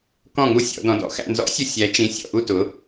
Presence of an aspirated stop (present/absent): absent